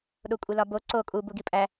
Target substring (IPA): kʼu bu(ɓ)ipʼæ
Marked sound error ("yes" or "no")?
yes